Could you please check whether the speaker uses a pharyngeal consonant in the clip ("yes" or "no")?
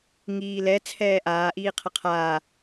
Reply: no